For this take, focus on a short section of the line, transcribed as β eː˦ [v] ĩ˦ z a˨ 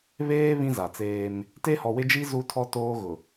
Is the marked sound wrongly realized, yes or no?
yes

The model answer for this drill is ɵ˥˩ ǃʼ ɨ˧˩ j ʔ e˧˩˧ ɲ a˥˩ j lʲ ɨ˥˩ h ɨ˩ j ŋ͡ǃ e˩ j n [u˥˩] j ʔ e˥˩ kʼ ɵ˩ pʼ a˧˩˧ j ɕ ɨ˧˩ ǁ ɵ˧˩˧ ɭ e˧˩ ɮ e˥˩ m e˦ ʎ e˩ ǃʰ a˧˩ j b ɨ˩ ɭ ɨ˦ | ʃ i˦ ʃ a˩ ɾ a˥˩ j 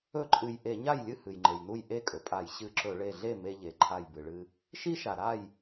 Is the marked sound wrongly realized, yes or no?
no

